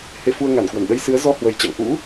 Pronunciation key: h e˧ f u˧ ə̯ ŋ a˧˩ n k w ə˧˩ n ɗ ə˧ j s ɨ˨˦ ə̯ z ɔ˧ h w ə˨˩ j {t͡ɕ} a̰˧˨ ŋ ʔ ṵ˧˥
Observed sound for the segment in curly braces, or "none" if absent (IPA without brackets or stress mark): t͡ɕ